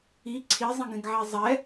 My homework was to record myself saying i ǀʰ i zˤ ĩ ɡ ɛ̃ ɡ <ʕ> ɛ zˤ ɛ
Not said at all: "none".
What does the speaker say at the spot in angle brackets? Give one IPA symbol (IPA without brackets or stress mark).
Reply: ʕ